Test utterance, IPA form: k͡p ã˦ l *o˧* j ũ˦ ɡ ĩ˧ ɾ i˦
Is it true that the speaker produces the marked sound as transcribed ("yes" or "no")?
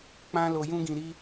yes